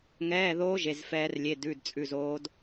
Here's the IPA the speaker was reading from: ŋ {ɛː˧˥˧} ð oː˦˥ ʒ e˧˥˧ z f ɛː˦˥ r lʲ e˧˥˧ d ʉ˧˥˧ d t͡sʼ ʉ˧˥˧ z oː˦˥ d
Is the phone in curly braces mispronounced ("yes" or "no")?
no